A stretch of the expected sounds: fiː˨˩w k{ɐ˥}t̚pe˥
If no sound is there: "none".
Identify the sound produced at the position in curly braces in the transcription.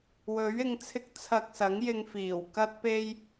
ɐ˥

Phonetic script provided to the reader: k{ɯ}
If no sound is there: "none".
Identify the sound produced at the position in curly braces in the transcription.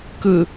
ɯ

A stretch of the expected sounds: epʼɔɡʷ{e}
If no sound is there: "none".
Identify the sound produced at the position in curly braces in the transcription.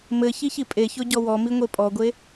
e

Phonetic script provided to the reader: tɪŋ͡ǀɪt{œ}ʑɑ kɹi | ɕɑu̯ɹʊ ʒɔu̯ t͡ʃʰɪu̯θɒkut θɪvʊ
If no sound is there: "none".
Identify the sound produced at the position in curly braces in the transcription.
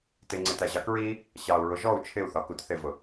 æ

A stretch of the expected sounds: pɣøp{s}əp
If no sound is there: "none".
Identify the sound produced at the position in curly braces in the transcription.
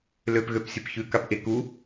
sʲ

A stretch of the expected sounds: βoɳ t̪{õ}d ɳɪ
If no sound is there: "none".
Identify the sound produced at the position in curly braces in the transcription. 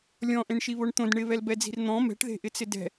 õ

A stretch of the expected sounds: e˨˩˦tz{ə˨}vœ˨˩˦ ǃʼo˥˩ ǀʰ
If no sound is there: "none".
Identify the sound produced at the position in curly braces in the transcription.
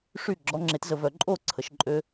ə˨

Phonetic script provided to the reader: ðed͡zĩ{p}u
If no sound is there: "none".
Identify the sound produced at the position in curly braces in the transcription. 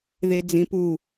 p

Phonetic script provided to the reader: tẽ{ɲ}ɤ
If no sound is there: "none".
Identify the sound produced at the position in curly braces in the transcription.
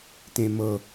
m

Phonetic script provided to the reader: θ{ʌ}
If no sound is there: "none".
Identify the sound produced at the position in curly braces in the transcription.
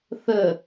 ə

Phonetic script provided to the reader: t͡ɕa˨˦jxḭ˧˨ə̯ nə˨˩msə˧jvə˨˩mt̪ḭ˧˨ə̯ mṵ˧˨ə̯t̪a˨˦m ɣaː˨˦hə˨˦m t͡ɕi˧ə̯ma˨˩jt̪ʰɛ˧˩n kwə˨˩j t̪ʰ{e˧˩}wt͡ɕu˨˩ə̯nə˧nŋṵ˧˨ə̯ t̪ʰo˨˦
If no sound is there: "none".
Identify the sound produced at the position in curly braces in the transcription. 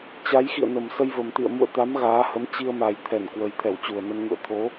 ɛ˧˩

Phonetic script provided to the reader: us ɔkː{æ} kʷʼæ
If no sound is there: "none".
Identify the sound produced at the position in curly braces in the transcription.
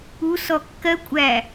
ɜ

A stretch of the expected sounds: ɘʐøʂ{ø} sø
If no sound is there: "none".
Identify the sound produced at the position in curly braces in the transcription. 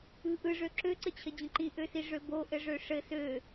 ɘ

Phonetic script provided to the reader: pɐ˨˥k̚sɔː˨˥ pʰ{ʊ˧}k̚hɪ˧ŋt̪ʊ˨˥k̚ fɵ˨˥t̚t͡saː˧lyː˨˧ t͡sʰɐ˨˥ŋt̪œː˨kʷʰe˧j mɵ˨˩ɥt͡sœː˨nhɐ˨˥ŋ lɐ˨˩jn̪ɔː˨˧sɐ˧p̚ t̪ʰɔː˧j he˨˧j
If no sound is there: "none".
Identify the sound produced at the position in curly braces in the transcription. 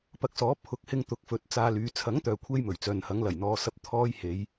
ʊ˨˥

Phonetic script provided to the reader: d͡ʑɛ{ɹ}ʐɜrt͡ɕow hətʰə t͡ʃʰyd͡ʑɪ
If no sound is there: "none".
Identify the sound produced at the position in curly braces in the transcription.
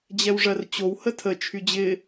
w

